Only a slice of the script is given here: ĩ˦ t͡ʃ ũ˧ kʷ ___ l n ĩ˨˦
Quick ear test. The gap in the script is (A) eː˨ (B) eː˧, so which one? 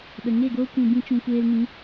B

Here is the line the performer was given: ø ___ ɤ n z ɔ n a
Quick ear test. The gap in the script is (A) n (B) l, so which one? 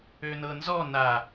A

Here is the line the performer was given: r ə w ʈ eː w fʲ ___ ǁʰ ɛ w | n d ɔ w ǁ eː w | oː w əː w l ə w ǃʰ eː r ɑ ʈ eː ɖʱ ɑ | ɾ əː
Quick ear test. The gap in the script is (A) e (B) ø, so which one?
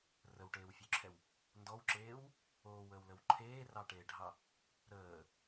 B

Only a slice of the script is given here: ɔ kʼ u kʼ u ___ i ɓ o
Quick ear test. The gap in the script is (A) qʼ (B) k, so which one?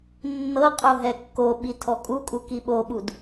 B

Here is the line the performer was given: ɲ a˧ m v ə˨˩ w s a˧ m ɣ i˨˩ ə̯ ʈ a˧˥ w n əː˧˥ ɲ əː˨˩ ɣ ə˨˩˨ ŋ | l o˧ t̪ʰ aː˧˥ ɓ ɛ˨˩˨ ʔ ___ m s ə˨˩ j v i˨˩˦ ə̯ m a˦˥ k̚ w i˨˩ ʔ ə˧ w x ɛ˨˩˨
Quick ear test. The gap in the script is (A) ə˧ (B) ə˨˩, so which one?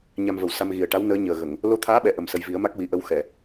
B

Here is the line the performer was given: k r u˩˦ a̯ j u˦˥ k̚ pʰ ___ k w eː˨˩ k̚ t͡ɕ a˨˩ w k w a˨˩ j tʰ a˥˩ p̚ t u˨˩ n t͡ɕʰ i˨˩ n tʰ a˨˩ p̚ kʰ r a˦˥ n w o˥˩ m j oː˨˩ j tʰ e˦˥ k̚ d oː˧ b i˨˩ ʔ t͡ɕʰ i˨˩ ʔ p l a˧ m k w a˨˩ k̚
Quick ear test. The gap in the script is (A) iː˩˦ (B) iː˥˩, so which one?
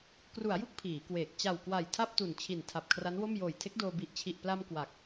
A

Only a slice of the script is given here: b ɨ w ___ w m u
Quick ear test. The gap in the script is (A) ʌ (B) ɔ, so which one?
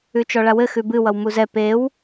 A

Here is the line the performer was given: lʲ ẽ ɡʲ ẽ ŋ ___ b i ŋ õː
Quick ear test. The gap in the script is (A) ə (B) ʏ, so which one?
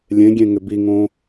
B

